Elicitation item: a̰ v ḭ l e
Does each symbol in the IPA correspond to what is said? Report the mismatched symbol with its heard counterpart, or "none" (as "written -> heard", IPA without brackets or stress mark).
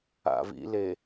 none